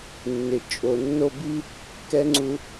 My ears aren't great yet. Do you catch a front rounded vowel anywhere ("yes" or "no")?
no